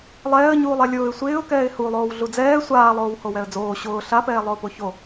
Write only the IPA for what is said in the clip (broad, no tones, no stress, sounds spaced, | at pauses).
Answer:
lˠ ɛː ə̯ ɲ uː lˠ ɛ lʲ ʊː ɪ̯ sʷ ɪː ʊ̯ k ɛː ɪ̯ h u lˠ oː w ɮ u d͡z ɛː sʷ aː lˠ oː w h o w ɛ ə̯ d͡z oː ɕ ʊː ɬ a p ɛː lˠ ʊː p o ç o